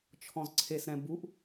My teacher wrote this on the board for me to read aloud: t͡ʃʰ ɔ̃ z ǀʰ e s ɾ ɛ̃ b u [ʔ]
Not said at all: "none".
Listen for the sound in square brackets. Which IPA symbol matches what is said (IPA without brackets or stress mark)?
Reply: ʔ